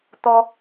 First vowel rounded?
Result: yes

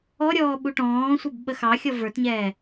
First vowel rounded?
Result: yes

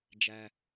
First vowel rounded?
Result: no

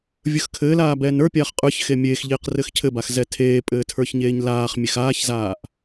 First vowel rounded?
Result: no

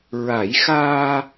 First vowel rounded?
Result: no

